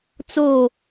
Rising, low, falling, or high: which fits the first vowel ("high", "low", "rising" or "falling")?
falling